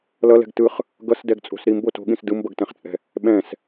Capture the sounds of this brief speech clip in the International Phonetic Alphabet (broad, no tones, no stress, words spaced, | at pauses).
lʌlɛ̤ɡ tɯχ | ɡʌsdɛɡt͡sʼo̤s ɾimbo to̤ɠĩs dɯmbʌɡtɛ̃χt͡sʼɛ̤ | ɓɛ̃s